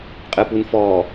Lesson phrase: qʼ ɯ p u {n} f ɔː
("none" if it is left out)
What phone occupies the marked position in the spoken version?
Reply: n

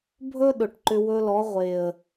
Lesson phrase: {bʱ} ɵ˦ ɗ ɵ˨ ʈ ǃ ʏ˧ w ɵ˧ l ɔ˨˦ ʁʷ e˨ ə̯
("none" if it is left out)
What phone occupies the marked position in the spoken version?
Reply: bʱ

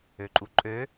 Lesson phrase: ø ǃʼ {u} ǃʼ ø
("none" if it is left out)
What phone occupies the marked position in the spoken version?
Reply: u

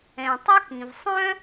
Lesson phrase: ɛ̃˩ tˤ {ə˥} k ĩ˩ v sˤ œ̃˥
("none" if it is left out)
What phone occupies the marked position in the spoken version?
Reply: ə˥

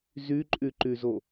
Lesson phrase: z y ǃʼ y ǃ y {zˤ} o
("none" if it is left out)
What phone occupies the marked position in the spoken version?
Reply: z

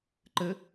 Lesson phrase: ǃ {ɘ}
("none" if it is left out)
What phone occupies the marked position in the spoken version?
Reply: ɘ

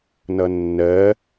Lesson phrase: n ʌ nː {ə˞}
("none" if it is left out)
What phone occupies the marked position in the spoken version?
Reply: ɜ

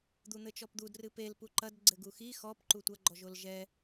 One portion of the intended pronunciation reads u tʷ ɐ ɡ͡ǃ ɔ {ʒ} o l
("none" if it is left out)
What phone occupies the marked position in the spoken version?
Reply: ʒ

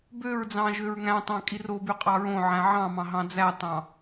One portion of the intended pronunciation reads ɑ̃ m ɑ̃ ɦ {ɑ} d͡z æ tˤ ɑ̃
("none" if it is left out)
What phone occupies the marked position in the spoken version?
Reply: ɑ̃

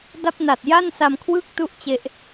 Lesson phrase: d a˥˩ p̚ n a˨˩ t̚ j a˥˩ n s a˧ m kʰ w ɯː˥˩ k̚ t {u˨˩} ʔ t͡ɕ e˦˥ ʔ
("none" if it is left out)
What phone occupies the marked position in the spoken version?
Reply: u˥˩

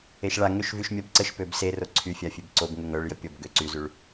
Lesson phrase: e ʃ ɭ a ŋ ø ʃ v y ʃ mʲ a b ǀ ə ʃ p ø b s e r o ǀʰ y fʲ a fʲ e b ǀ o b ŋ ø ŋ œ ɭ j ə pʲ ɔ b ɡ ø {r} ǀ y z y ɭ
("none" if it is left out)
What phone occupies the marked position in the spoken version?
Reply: none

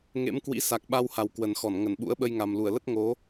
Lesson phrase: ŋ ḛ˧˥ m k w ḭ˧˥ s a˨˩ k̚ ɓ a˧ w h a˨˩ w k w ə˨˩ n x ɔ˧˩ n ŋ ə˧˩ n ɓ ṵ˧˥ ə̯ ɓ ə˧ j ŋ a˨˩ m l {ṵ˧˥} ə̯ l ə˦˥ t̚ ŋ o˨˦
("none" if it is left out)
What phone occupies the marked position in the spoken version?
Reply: u˧˩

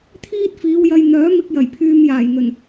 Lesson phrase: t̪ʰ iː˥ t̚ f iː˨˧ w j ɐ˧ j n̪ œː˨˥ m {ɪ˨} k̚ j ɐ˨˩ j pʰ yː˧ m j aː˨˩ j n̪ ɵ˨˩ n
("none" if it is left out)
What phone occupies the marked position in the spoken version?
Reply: ɪ˧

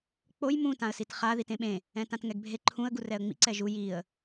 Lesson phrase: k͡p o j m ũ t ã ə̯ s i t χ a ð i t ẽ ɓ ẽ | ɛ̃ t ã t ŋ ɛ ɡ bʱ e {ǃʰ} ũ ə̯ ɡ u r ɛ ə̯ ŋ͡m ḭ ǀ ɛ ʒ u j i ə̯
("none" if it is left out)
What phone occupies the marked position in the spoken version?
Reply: ǃʰ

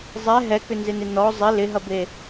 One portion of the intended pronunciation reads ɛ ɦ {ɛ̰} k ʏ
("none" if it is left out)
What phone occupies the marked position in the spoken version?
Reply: ɛ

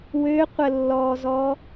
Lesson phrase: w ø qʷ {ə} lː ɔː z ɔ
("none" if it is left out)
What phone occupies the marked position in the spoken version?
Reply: ə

